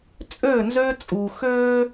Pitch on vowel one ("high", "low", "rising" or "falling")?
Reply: falling